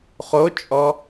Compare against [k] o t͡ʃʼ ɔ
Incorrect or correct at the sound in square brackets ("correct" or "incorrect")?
incorrect